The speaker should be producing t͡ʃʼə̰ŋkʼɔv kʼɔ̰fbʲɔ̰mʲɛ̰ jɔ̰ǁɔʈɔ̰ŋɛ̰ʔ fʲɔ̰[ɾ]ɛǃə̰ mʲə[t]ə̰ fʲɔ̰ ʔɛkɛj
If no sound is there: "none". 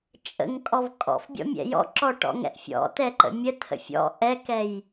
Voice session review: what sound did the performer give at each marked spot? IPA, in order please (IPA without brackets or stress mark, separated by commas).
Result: t̪, t̪ʰ